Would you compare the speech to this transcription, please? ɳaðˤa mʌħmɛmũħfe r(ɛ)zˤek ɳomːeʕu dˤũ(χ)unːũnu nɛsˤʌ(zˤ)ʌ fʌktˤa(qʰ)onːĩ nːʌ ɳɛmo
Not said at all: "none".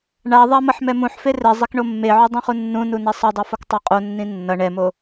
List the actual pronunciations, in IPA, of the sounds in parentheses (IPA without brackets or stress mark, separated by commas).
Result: ɛ, χ, dˤ, qʼ